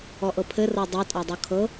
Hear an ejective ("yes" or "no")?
yes